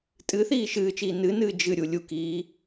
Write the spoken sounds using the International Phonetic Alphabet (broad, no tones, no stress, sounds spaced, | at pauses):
tʼ ɨ θ iː ʃ ɨː t͡ʃ iː n ɨ n ɨː d͡ʒ ɨ ɾʲ u lʲ u k iː